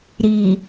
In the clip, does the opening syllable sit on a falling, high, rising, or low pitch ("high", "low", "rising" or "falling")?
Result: low